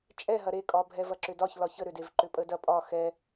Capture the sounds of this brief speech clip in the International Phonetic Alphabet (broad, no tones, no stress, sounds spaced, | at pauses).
t͡ʃʼ ɛ ɦ ɐ ɾ e kʼ ɒ bʱ ɛ v ɐ ǁ ʏ d ɒ ç l ɒ ç ə ɾ ʏ d e v ǃ ʏ pʼ ə d ɐ pʼ ɒ x ɛ